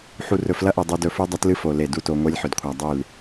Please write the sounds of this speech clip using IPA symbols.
ħ u˨ r ɵ˨ f l ɐ˦ ʔ o˨ dˤ u˦ d ɵ˦ f u˦ dˤ ɐ˦ t l ɨ˦ f o˨ l e˦˨ d u˦ t o˨ ŋʷ e˦ lʲ ħ ɵ˨ d kʷʰ a˨ dˤ ʉ˦˨ l

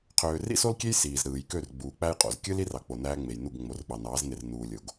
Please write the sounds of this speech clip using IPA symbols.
qʰ øː˨ r ḭ˦ s o˦ l kʲ e˦ j s iː˨ z ɾ ɯː˨ j k ø˦˨ r ɡ͡b uː˨ k͡p æ˦ j qʼ o̰˨ z kʲ ɯ˦ l i˦ r ɑ˨ k͡p o˨ n æː˦ ŋ͡m e˨ j n u˦˨ ɡ ŋ͡m o˨ r ɓ ɑ˨ n ɑː˨˦ z n e˨ r n uː˨ lʲ o˨ ɡ

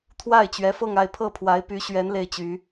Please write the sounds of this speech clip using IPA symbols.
t̪ʰ w a˥˩ ɪ̯ t͡ɕ ɥ ɛ˧˥ f ɤ˥˧ ŋ a˥˧ ɪ̯ pʰ ɤ˥˩ pʰ w a˧˥ ɪ̯ p y˧˥ ɕ ɥ ɛ˧˥ n l e˥ ɪ̯ t͡ɕ y˧˥

